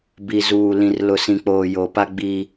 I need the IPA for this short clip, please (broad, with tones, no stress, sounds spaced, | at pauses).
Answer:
b i˨ z uː˨ l ĩ˨ r l ʊ˨ s ĩ˨ k͡p oː˨ j o˨ p a˦ ɡ͡b iː˦